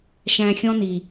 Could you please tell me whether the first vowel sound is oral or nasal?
nasal